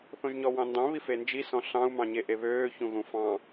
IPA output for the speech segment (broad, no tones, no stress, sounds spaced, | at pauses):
θ õ ʒ ɲ ɔ w ɑ̃ n d ɑ̃ β i f e n d͡ʒ i s ɔ̃ ɬ ɑ̃ u̯ m ɑ̃ ɲ e ʔ e β øː ç ũ ɣ ũ f ɑ̃